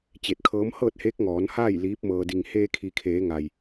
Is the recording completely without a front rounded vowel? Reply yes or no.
yes